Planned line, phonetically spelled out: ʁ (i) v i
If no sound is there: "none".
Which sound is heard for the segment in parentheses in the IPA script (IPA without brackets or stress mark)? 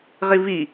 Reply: i